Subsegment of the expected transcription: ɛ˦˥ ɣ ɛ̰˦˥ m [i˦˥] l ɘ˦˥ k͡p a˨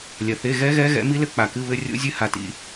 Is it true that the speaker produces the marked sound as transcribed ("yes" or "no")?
yes